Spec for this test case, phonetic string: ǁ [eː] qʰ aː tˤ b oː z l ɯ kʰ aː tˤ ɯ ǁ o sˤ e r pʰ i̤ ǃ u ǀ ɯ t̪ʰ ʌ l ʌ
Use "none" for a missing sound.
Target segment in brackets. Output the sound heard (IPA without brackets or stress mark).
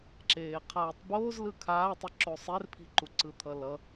eː